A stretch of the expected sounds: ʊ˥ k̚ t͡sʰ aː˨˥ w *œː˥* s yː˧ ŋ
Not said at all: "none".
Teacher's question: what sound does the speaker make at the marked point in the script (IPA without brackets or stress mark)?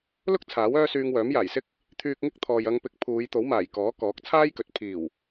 œː˥